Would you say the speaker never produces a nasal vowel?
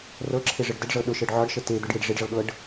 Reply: yes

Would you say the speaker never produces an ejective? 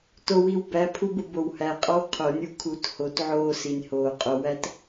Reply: no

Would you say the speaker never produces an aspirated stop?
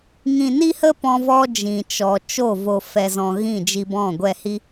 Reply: yes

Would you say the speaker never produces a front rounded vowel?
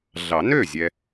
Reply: no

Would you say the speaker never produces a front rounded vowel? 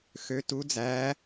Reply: no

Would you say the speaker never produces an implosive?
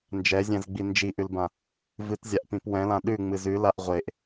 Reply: no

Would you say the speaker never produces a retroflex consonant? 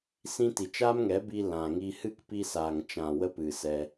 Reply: yes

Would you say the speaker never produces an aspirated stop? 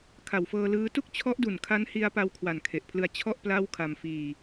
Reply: no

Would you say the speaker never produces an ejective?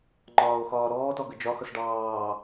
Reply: yes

